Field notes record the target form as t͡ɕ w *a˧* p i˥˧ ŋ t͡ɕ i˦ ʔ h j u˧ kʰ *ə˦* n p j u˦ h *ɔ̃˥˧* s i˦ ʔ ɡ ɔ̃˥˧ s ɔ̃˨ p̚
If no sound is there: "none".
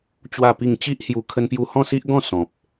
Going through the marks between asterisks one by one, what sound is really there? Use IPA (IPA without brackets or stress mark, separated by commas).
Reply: a˥˧, ə˦, ɔ̃˥˧